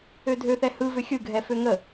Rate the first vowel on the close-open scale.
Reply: mid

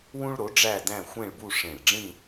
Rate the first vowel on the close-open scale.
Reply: close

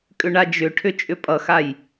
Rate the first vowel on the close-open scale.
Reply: close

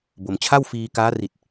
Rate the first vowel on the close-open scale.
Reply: mid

